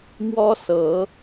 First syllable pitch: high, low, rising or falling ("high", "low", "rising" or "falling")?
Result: high